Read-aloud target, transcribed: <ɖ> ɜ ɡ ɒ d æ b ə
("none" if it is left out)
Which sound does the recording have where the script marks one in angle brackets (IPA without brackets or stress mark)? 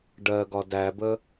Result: ɖ